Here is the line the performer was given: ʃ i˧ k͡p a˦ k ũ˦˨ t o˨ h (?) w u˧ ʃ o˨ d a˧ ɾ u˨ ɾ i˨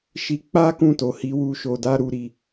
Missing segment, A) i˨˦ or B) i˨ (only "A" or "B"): A